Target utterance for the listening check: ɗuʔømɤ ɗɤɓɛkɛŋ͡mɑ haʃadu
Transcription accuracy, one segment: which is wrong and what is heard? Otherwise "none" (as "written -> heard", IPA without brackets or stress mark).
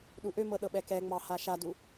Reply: none